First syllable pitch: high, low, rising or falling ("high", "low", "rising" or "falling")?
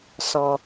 low